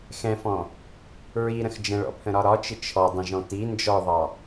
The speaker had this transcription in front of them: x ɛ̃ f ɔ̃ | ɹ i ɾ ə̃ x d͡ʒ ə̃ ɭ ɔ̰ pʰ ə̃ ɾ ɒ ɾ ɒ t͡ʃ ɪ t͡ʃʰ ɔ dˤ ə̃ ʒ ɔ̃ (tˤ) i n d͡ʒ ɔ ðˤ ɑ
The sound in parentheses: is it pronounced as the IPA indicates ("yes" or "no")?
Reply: no